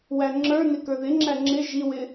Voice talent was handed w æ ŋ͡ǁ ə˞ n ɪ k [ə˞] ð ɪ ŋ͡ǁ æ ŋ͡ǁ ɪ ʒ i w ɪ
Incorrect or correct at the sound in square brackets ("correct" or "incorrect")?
correct